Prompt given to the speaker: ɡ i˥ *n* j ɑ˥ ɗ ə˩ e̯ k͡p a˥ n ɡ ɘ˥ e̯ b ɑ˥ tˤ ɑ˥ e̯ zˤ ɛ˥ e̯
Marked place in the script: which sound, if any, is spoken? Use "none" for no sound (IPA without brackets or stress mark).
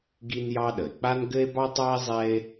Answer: n